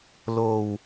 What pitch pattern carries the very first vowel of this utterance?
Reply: low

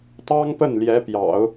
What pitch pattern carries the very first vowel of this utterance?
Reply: high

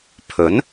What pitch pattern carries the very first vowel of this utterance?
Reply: rising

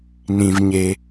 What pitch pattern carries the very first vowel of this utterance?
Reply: low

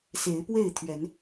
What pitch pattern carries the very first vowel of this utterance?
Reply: rising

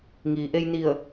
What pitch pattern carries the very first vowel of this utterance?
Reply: low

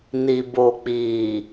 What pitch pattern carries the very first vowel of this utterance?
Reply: low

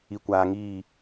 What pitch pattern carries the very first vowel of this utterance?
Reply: low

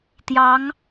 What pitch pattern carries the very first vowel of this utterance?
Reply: rising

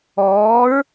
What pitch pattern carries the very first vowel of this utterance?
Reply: rising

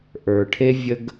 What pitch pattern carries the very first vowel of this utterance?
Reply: low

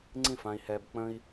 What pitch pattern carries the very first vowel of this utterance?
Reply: falling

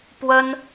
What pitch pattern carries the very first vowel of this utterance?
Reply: high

